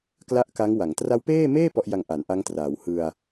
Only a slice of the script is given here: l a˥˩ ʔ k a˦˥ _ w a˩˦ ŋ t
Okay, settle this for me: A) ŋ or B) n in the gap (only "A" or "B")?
A